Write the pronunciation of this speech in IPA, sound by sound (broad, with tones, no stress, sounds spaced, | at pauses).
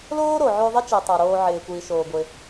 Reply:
l oː˥ ɾ o˩ ʕ ʉ˧ ðˤ ɪ˥ t͡ʃ i˩ tˤ a˩ ɾ oː˧ ʕ ɪː˩ kʷ iː˩ ʃ oː˩ ɡʷ ɪ˩